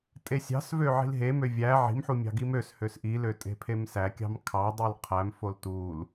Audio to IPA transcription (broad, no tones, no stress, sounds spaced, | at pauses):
tʼ e sʲ ɑ̤ s v ø ʕ i̤ l ɦ e m ø vʲ æ ʕ i̤ m ħ u mʲ ɑ̤ ɡ i m ø s h ø s ʔ i l ø tʼ e̤ pʰ e m s æ kʲ ɑ̤ m kʰ ɑ dˤ i l qʰ æ m f o l t u l